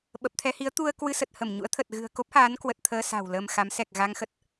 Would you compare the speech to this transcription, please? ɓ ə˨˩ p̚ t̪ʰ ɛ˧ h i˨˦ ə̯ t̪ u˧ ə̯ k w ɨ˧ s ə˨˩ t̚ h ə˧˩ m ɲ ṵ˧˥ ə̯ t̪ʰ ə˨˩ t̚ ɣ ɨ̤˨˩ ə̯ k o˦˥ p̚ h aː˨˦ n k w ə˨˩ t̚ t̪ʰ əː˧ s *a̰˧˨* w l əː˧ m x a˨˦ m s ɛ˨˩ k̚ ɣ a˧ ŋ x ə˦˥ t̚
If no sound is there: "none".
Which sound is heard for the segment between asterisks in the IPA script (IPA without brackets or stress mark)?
a̤˨˩